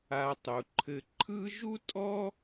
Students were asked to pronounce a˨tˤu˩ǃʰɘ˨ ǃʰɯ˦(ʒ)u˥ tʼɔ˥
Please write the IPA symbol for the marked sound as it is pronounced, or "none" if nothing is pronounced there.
ʒ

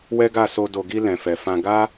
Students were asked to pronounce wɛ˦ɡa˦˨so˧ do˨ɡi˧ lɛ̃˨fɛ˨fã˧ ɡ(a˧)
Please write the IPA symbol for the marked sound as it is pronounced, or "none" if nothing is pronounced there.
a˦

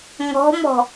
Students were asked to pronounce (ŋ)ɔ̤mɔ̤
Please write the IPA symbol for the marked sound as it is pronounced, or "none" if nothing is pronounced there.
ŋ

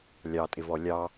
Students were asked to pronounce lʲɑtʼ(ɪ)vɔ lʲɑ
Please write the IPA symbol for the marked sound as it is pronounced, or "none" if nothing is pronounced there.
ɪ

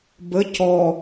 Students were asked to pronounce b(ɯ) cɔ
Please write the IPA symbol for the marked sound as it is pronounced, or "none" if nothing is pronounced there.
ə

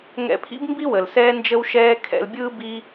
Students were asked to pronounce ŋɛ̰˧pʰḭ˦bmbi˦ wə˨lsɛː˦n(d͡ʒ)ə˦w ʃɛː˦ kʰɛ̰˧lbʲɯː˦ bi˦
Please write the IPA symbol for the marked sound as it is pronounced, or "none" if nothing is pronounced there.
d͡ʒ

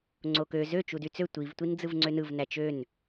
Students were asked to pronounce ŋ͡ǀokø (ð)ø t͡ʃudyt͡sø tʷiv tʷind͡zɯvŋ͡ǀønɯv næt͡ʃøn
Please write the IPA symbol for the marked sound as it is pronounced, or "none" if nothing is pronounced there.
z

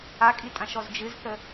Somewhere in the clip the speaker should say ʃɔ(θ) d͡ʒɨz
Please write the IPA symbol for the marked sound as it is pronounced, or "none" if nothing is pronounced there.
z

